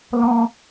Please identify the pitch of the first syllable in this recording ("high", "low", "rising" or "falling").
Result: high